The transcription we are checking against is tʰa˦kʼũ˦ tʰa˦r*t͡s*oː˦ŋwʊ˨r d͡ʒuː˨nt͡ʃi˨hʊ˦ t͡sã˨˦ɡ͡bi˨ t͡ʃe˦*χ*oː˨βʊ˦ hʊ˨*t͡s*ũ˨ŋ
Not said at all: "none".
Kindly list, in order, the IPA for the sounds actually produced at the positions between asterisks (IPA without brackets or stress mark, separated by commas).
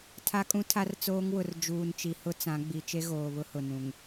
t͡s, ɣ, n